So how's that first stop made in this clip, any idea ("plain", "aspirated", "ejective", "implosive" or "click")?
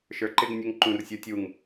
click